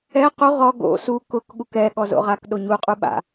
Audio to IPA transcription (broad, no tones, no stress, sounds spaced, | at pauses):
ɛ q u ʁ ɔ ɡ o̰ s u k ʊ k ɠ u k ɛ ɠ ɔ z o̰ ʁ a k ɗ o ɲ u qʼ u ɓ a̰